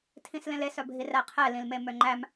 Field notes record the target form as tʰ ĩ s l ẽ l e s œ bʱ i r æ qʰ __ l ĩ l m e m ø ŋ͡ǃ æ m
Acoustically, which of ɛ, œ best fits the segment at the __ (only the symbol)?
ɛ